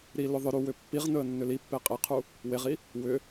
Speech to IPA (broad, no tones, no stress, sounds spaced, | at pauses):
ɾ i l ʏ ðˤ ʏ ɾ u w ʏ pː i ʁ n ɵ ə̯ nː ʏ l i pː e qʼ e qʰ u | w e ʁ i | w ʏ